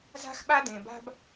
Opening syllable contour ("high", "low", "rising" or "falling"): high